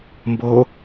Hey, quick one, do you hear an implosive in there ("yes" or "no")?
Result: no